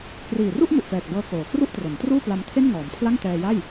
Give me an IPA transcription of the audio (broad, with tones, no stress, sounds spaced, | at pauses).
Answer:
k r iː˨˩ r u˥˩ ʔ m u˨˩ ʔ p ɛː˨˩ k̚ b ɤː˧ k oː˩˦ k r u˥˩ ʔ t r o˩˦ n t r uː˥˩ p l a˧ m tʰ e˥˩ n ŋ ɔː˩˦ m pʰ l a˥˩ ŋ t ɛː˧ j a˥˩ j